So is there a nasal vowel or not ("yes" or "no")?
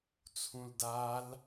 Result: yes